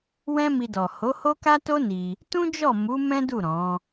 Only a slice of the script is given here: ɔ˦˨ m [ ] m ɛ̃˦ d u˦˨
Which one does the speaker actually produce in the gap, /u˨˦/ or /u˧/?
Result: u˨˦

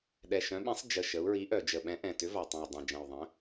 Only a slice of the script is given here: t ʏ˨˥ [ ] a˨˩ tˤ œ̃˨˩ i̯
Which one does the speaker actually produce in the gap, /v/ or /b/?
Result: v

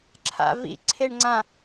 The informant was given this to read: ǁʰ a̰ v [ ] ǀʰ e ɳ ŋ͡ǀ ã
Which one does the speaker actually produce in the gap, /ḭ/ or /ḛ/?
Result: ḭ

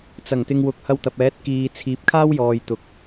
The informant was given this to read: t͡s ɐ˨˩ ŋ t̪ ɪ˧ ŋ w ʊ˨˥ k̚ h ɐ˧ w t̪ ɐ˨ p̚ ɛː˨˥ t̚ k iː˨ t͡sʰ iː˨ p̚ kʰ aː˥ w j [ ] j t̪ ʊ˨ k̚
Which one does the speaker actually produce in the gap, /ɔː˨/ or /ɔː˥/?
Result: ɔː˨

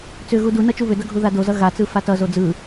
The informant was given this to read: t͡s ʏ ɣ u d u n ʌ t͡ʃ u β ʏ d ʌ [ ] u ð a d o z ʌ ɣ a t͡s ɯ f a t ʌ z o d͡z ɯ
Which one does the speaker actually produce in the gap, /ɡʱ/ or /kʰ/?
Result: ɡʱ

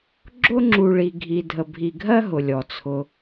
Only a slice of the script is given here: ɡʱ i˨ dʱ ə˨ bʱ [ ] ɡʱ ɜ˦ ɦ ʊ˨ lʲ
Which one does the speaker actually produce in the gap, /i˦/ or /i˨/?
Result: i˨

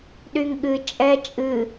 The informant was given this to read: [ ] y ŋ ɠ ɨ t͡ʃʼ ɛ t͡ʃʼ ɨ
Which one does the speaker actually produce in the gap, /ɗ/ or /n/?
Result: ɗ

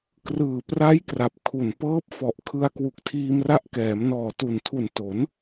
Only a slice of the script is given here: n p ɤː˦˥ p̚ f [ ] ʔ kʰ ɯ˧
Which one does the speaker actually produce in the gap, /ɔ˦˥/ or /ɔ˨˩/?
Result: ɔ˨˩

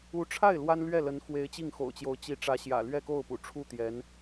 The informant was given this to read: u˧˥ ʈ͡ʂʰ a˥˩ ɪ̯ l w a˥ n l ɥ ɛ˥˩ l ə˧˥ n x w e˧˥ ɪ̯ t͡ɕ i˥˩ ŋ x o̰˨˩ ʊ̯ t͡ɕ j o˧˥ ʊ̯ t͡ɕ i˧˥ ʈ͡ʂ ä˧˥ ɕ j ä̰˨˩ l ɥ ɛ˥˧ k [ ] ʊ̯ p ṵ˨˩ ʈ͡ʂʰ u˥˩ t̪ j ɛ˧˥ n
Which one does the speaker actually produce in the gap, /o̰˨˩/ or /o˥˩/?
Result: o˥˩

